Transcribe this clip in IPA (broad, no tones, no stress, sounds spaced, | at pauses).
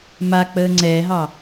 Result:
m a k͡p əː ŋ͡ǀ ɛː ɦ ɑ